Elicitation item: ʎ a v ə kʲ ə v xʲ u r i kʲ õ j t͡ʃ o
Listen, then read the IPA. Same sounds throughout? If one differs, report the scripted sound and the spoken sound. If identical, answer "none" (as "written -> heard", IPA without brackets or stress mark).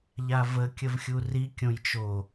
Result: none